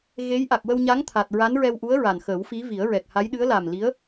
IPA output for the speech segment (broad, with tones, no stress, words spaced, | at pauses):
ɣe˧˥j ʔa˨˩k̚wə˧wɲa˧˥ŋ t̪ʰa˨˩t̚ ɹa˧˥nɹɛ˧wʔu˧˥ə̯ɹa˨˩n xəː˨˩˦wfi˧˥vi˨˩˦ə̯ ɹɛ˨˩k̚ha˧˥jɗɨ˧˥ə̯ la˨˩m li˧˥ə̯